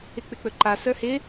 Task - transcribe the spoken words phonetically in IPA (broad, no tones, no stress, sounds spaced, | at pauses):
ɪ k͡p ɪ k͡p ɵ ǃ a s ə˞ h ɪ